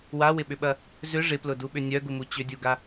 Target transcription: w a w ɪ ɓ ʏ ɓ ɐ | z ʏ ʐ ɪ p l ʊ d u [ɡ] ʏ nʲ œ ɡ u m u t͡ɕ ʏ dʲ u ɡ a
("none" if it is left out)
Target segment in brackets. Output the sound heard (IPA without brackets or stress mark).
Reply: ɓ